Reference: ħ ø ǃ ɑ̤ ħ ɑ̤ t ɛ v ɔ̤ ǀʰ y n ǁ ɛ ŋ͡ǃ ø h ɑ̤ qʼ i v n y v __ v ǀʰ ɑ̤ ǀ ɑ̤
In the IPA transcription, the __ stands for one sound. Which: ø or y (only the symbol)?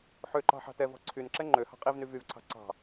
y